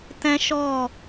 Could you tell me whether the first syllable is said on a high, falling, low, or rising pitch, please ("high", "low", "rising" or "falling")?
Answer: high